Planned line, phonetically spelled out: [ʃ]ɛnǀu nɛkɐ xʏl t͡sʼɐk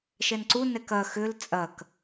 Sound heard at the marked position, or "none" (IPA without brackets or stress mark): ʃ